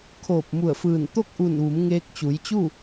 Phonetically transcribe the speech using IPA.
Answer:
kʰ oː˧˩ p̚ m u˧˩ ə̯ f ɯː˧˩ n t̪ o˥˨ k̚ ʔ u˧˩ n ʋ u˩˧ m ŋ eː˧ k̚ t͡ɕ u˩˧ j t͡ɕ u˥˨

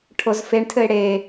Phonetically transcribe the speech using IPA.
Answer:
ʈʰ o z f e ɳ tʰ ɘ ɪ̯ ɽ e

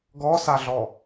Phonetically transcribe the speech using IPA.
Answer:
ɡ ɔ s a ɮ ɔ

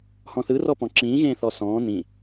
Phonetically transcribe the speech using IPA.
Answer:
h ɔ̃ θ ɯ r ɔ p ɔ̃ ǁ ĩː ɣ ẽː θ ɔ s ɔ̃ː n ĩ

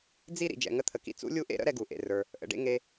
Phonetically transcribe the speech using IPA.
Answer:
d͡z i˥ ɾ ḭ˩ d͡ʒ ɛ̰˩ ŋ ə˥ t̪ʰ ə˩ k ḭ˥ t͡s ṵ˥ lʲ u˥ ʔ ḛ˥ ɾ ə̰˥ ɾ ɛ˥ ɡ u˩ ʔ ḛ˩ r ə˞˩ | ʔ ə̰˩ ɖ ḛ˥ ŋ e˥

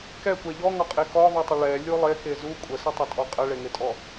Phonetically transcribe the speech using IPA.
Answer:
k ɛ kʷ ɛ ʎ ɔ ŋ ɔ qʼ e k ɔ ðˤ u tˤ ə ɭ ɛ lʲ u lˠ e k e z u kʷʼ ə s ə tˤ ə tʼ ɔ qʼ ə ɭ e ŋ e tʼ ɔ

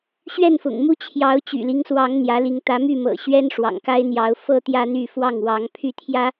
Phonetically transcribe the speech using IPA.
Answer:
ɕ ɥ ɛ˥˨ n f ʊ̰˨˩ ŋ m u˦ t͡ɕʰ j ɑ˨˦ ʊ̯ t͡ɕ y̰˨˩ l i˦ ŋ s w ɑ˨˦ ŋ n̪ j ä˨˦ l i˨˦ ŋ t̪ ä˨˦ m y˥˨ m ɤ̰˨˩ ɕ ɥ ɛ˦ n ʂ w ɑ̰˨˩ ŋ k a˦ ɪ̯ n̪ j ɑ˨˦ ʊ̯ f ɤ˦ t̪ j ä˦ n̪ y˥˨ f w ɑ˥˨ ŋ w ɑ˨˦ ŋ pʰ y˥˨ t̪ʰ j ä˦

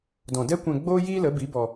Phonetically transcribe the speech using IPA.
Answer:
d ɔ̃˨ d ɛ˦ kʷ ɛ̃˧ ɡ͡b oː˦ j iː˦ l ə˨˦ b i˨˦ b ɔ˧

